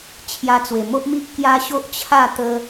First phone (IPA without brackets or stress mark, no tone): t͡ɕʰ